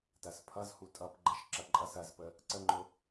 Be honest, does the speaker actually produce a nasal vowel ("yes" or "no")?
no